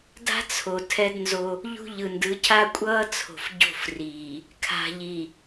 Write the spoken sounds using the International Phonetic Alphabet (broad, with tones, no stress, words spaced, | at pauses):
da̤˦t͡sʰo˨ tʰɛ˦dnzo˦ | ʎṳ˦ ʎɯ˨ndɯ˨˦cʰa˦ kʷʼʌː˦t͡sʰo̤˨f ɟo̤˦˨friː˨ | kʰa̤˨ʎi˨